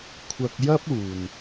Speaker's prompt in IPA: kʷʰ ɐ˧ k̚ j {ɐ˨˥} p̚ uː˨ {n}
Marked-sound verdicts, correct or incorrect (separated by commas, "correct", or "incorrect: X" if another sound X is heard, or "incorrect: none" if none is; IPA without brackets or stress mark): incorrect: ɐ˥, correct